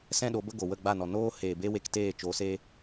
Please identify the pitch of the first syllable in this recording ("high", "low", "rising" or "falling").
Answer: high